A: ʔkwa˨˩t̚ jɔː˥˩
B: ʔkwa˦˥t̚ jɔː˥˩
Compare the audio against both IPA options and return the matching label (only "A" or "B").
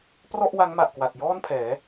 A